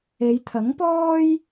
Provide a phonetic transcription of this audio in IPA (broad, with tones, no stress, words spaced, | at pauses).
e˨˧jt̪ʰɐ˨˥ŋpɔː˥j